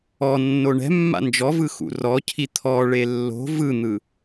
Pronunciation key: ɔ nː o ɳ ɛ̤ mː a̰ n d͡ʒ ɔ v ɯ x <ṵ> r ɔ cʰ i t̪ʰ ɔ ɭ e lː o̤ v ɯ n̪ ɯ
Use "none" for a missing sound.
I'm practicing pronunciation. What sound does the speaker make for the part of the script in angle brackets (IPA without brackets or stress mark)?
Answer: ṵ